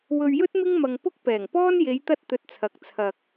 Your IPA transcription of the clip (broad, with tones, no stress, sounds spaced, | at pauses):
w ɵ˧ ɥ j ɵ˥ t̚ m ɪ˥ ŋ m ɐ˧ ŋ p ʊ˥ k̚ p ɛː˨˩ ŋ p ɔː˥ n j e˨˧ j t̪ ɐ˧ t̚ t̪ ɵ˨ t̚ t͡sʰ ɐ˨˥ k̚ t͡sʰ ɐ˨ k̚